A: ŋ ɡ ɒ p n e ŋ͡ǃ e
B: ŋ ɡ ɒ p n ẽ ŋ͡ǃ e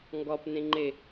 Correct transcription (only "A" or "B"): B